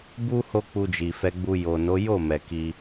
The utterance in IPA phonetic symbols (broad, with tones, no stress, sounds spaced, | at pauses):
b u˦ h o˦ k͡p u˧ d͡ʒ i˨ f ɛ˧ ɡ͡b u˧ j o˨ n o˨˦ j o˦˨ m ɛ˨ k i˧